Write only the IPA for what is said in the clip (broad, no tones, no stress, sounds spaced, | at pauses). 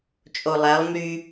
t͡ʃʼ o lˠ æ lˠ m y